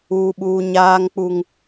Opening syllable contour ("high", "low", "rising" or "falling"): high